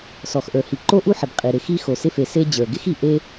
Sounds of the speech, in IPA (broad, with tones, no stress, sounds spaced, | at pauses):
s ɔ˩ x ʔ ə˞˩ h i˩ ǃ o˥ ʔ u˥ ħ ɪ˩ b qʼ i˩ ɾ ɪ˩ x i˥ x o˩ s ɪ˥ f e˩ s e˥ d͡ʑ ə˞˩ ɡ ɪ˥ x i˩ ʔ e˥